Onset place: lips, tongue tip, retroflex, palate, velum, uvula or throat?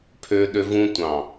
lips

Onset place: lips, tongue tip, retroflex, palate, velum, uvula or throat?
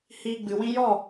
throat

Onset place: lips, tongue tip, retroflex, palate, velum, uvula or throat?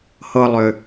throat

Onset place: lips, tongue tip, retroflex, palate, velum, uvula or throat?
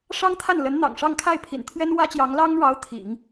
retroflex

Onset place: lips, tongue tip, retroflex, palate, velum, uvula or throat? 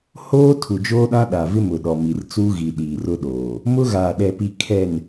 throat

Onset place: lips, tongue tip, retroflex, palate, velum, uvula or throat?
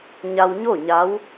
palate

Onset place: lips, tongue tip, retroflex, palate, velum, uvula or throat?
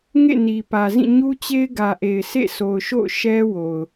velum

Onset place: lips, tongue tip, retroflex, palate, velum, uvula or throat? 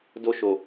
tongue tip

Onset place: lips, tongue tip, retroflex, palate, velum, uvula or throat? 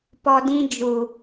lips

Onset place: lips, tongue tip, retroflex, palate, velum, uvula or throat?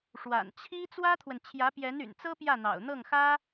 retroflex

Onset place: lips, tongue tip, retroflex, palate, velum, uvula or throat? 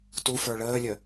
tongue tip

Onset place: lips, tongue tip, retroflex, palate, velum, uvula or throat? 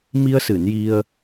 lips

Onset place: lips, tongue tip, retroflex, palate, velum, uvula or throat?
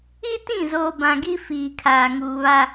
tongue tip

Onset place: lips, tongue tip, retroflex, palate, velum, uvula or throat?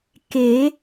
velum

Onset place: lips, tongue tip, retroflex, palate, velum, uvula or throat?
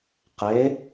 uvula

